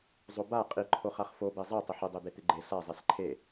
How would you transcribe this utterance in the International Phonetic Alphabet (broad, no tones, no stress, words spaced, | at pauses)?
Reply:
zˤoba qʼiǃʰoχaχ fobe zˤe tˤɪħɪdˤed̪e t̪ɪɡ͡ǃe ɬazˤɛɬ ǃʰe